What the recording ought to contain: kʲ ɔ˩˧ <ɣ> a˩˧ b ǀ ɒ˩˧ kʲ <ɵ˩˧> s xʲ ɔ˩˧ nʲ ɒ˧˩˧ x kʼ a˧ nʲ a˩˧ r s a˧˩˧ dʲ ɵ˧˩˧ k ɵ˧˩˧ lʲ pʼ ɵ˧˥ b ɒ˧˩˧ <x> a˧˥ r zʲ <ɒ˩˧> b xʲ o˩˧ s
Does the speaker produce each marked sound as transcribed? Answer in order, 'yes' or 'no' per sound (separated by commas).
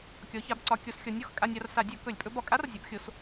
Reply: no, no, no, yes